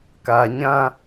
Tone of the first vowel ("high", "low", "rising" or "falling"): low